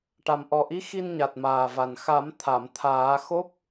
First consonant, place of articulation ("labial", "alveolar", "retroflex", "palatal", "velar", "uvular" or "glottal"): retroflex